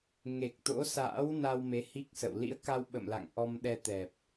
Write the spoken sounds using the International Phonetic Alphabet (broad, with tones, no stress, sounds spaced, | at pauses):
ŋ e˨˩ k̚ t̪ o̰˧˥ s a̰ː˧˥ w n a˧ w m e˨˦ h i˦˥ k̚ s ə̰˧˨ w l ḭ˧˥ ə̯ k a˧ w ɓ ə̰˧˨ m l a̰˧˨ ŋ ʔ ɔ˧ m ɗ ɛ˧ t̪ ɛ˨˩ p̚